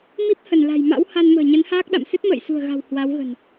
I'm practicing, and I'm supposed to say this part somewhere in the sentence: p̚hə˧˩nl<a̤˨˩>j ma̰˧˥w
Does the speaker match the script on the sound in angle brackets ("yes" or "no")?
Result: yes